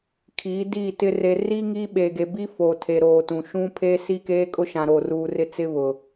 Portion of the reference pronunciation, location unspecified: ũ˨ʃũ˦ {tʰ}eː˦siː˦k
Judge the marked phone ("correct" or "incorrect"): incorrect